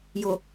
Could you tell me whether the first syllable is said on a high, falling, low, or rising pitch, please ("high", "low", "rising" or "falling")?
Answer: low